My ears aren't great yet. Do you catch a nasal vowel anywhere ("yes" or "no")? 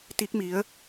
no